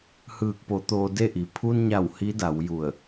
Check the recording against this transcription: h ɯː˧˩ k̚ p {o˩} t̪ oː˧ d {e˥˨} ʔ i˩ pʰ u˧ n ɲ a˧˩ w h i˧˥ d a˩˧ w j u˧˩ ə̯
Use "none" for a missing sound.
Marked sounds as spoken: o˩˧, e˥˨

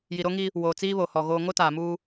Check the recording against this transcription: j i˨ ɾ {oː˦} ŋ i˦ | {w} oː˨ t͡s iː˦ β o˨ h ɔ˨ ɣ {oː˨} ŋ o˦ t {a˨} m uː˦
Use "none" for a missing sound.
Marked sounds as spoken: o˦, w, oː˨, aː˨

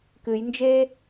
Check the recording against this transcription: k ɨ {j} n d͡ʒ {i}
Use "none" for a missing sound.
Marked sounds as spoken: j, e

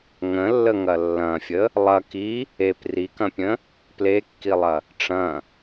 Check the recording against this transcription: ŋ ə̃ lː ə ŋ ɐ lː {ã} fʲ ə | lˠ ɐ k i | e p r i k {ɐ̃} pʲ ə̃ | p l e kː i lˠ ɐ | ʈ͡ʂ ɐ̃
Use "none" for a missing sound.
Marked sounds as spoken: ɐ̃, ɐ̃

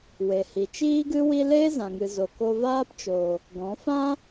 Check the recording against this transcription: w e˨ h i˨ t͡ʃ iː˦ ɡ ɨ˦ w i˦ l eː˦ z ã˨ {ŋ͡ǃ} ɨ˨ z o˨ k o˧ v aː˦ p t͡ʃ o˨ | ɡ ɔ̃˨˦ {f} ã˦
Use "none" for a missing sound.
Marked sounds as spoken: ŋ, f

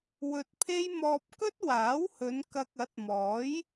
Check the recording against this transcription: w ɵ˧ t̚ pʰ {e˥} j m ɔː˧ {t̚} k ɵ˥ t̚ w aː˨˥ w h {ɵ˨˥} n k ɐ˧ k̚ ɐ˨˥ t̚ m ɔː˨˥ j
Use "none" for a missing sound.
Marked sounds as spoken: e˥, p̚, ɵ˨˧

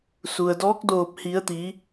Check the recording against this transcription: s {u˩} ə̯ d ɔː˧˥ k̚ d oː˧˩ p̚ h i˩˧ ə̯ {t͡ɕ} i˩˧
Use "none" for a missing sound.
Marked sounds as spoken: u˩, t̪

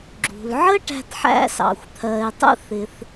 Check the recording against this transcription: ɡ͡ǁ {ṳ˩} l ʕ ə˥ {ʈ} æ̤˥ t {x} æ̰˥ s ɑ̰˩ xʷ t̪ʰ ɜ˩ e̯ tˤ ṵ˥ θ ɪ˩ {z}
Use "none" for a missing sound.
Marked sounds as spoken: ṳ˩, ʈ, ħ, θ

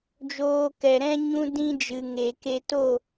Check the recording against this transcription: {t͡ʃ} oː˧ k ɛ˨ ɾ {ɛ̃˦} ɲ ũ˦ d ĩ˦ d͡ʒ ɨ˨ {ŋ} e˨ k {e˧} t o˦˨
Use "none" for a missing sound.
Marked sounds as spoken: d͡ʒ, ɛ̃˦, ŋ, e˧

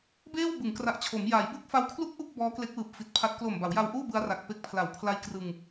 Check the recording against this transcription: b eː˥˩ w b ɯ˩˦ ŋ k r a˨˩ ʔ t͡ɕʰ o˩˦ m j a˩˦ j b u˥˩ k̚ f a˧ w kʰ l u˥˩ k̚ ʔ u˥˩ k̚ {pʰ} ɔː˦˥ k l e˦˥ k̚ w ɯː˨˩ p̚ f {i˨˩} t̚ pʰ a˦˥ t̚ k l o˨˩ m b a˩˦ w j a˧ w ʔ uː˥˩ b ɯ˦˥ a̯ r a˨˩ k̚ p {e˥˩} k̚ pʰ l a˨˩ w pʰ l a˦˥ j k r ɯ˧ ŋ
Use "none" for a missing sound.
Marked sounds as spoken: b, i˨˩, e˦˥

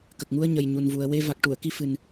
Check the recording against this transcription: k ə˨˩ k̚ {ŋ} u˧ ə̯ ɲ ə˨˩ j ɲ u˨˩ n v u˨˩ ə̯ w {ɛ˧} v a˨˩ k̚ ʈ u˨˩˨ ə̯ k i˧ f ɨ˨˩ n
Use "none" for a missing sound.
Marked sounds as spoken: ŋ, e˧

